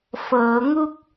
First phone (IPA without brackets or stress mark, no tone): f